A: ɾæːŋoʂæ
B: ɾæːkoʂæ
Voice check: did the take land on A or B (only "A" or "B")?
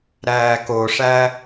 B